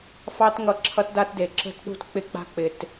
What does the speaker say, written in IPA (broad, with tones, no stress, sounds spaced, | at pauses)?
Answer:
f ɑ˦ t ŋ ʌ˨˦ ǁʰ ʌ˦ t d a˦ t d e˨ ǁ ə̤˦ t ɗ ṳ˦ t k͡p ɪ˦ k͡p a̤˦ k͡p ɪ˨ t